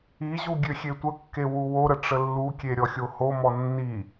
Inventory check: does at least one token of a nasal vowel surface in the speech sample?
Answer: no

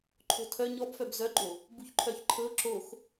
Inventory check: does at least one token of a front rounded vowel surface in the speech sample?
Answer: yes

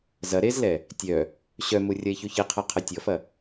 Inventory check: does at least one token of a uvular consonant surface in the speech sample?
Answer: yes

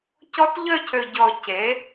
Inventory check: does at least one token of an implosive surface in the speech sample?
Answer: no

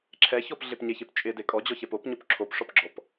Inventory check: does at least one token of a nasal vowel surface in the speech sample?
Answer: no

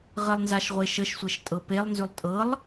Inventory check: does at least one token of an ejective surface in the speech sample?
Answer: yes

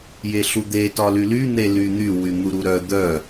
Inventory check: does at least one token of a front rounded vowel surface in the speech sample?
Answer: yes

